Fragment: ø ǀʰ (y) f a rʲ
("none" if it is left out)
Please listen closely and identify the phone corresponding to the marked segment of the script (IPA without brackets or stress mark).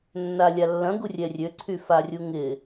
y